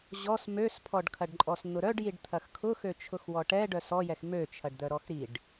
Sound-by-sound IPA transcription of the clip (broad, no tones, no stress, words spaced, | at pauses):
ʑɔs møspʰɔɖkʰɐɖǃʼɔs n̪ʊɾœɖjiɖ t̪ʰɐxkʰʊxø t͡ʃʰʊxwɔʈɛ ɖœsɔjɛx møt͡ʃʰɐɖd̪œ ɾɔxɾiɖ